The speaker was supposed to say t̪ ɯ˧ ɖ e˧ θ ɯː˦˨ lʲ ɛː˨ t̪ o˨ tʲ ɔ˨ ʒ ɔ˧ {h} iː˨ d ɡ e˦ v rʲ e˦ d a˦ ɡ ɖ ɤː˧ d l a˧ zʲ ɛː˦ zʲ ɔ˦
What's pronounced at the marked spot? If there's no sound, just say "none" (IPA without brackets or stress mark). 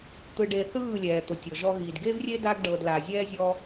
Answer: ɣ